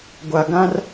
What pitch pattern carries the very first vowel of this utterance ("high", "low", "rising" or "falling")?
low